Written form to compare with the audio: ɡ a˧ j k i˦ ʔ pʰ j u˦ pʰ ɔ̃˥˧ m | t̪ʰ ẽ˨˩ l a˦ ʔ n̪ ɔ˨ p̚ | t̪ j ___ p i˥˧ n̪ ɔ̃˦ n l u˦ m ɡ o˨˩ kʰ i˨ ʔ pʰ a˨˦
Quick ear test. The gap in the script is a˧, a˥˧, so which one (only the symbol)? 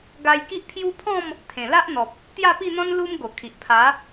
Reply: a˥˧